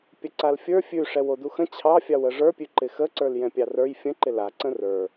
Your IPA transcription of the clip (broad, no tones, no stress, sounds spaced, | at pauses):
pʲ ə ǀ a l fʲ ə˞ fʲ ʉ ʂ ɛ w o d u x ə̃ t͡ɕʰ ɑ fʲ ɑ w ə ʐ ə˞ pʲ ʉ ǃ ɪ x ə ǀ ə˞ l j ɛ̃ pʲ ɑ r ə˞ j fʲ ə̃ ǃ ɪ l a ǀ ə̃ r ə˞